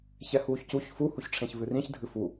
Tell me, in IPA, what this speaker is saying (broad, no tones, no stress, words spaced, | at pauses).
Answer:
çɛhuːçcuç fu huçʈ͡ʂʰẽçvɨrĩç dʱɨfu